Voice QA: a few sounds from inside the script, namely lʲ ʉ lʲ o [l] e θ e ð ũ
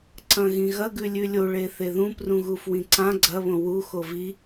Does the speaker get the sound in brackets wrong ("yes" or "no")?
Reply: yes